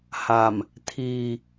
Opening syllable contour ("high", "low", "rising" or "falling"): low